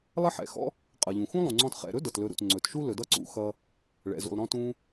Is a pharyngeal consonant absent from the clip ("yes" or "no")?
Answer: no